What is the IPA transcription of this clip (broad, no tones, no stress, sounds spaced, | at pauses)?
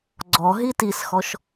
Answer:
ɡ͡ǀ ɔ ɦ i t i s x ɔ ʃ